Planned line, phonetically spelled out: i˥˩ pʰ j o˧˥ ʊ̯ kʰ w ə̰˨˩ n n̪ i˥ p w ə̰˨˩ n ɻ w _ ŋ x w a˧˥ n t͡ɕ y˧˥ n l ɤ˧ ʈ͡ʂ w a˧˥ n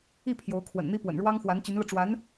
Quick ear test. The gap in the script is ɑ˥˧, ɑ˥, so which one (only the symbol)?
ɑ˥